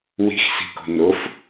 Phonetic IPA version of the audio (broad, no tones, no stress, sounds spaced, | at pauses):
w i̤ x s i̤ k o̤ n o f